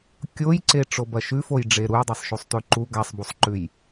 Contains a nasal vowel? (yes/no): no